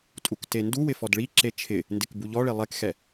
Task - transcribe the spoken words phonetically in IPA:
tʼ u k t e n d u w ɪ f ɔ d ɭ i ǁ e t͡ʃʰ ɪ | n d ɪ k b u ʎ ɔ ɭ e lˠ ɛ k x ɛ

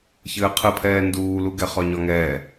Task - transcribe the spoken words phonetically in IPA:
ç ɘː qʰ ɨ pʰ ɛː n d uː l u ɡ ɛ χ ɒ ɲ ɒ ŋ ɛː

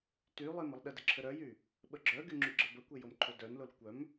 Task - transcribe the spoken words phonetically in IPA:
t y lˠ e m ə lˠ ɗ ə d ə ǁʰ ə ɾ œ j y | ɓ ə ɡ͡ǁ œ ɡ y ŋ͡ǁ y ɡ͡ǁ ə b ə kʷ e j o m ǃʰ o d œ n l o l kʷ œ m

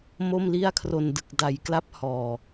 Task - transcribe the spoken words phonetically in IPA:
m o˥˩ m l i˥˩ a̯ kʰ r o˧ n d ɯ˨˩ k̚ d a˩˦ j k l a˦˥ p̚ h ɔː˨˩

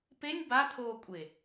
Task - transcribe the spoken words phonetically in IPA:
p e nʲ b a t̪ʰ oː kʷʼ e

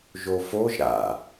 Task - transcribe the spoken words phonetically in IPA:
ʒ o f o ʒ ɾ a̰

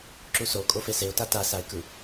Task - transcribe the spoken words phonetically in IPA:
ǁ u s o kʼ o f e s e ʊ̯ t a t a s a ɪ̯ k ɯ

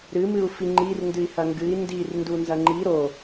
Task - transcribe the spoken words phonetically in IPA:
ɾ ɨ m ɨ u̯ f i ŋ͡ǃ i r n d ɨ i̯ h ɐ ŋ ɡ ɨ i̯ n d i r n d u n z ɐ ŋ͡ǃ i ɾ o

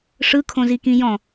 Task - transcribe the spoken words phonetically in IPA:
ʂ ɯ kʰ õ z i k ĩ j ɔ̃

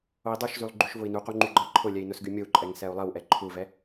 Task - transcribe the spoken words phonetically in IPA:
o i̯ dˤ u ʃ z y lˠ ɡ͡ǃ y ʃ v ʊ i̯ n u q u ŋ͡ǃ y ɡ͡ǃ ɜ ǃʰ ʊ lʲ ɛ i̯ n ʊ s ɡ y mʲ o u̯ ǃʼ ɛ ŋ s ɛ u̯ lˠ ɜ w ʔ ɛ ǃʰ u v ɛ

